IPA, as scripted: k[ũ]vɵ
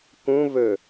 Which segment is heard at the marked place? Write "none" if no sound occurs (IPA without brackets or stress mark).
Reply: ũ